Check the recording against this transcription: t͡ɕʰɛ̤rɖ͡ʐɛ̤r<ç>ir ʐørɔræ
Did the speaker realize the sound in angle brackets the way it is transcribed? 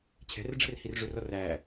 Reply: no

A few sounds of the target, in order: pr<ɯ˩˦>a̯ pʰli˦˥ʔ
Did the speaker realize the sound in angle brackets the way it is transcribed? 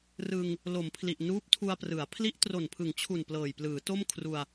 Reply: yes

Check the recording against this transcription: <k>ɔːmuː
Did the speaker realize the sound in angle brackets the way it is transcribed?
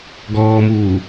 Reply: no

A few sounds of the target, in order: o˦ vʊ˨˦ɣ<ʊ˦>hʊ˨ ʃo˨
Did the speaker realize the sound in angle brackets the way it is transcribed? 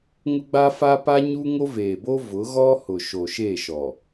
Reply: no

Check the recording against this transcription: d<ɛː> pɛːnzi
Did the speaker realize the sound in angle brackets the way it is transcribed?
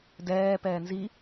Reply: yes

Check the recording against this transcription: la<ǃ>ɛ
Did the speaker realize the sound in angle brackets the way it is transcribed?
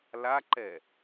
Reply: yes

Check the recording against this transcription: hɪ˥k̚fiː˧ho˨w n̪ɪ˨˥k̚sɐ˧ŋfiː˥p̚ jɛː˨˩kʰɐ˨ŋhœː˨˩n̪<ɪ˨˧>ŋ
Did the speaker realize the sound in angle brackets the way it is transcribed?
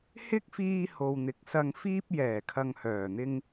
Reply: no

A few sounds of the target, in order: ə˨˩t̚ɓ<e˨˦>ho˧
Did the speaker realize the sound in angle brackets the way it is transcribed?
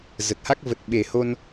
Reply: no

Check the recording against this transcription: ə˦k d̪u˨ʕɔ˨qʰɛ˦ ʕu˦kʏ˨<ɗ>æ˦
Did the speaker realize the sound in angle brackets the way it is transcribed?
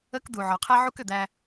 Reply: no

